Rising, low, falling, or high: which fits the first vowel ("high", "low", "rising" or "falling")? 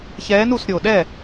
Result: rising